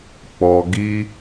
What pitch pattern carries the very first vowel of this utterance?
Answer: low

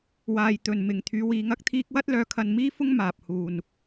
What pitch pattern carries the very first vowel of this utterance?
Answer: low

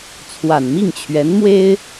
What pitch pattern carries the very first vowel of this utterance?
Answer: low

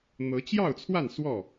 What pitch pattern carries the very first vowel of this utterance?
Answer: rising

